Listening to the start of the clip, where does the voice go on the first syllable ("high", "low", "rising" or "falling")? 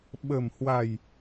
low